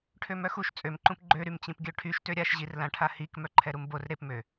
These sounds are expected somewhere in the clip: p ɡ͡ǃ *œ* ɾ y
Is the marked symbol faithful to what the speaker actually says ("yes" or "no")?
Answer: no